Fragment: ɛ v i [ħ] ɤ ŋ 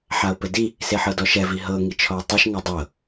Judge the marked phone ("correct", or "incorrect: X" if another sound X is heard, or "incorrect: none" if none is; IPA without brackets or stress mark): incorrect: ɦ